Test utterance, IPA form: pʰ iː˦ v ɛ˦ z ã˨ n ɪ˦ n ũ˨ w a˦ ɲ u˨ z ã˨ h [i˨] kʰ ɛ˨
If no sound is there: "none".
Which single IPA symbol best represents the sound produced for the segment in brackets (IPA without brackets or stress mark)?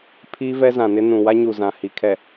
i˨